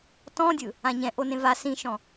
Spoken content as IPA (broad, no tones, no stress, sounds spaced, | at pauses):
t ɔ̃ dʲ ɯ | ã ɲ ɛ̃ ʔ o n ẽ v a s ĩ ʃ ɔ̃